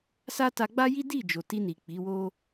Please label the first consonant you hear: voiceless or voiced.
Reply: voiceless